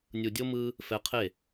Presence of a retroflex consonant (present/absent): absent